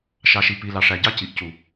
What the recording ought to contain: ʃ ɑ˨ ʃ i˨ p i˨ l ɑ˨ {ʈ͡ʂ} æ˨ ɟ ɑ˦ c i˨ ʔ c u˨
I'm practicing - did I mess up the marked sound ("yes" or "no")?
yes